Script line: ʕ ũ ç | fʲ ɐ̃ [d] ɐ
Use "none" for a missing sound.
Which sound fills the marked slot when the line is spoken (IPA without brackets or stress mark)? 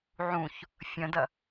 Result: d